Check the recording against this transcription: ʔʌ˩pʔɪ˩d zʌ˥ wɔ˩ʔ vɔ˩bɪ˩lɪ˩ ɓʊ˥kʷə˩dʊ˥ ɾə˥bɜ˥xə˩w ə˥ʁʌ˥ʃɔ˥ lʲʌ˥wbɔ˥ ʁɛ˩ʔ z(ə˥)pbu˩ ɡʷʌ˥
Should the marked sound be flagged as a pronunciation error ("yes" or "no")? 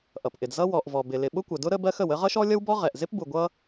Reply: yes